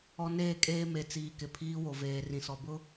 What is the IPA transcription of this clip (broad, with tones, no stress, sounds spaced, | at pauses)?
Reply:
ɔ˨ n eː˦˨ kʼ eː˦ m e˨ t͡s iː˨ k ɪ˨ pʰ iː˦ w o˨ v eː˨ r ĩ˨ s ɔ˨ b ʊ˦